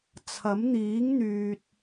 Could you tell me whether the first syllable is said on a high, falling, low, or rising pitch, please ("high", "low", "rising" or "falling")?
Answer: rising